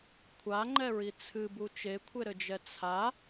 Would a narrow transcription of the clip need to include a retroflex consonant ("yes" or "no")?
no